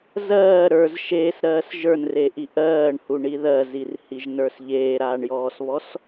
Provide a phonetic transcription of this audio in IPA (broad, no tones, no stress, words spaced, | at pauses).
zɜː ɾə˞z ʃeːsɾɜːs ʒə˞nreʔi ʔɜːɳhuɳi ðɜzirhiʒnə˞s ʎeːɾaːɳjɔːsβɔs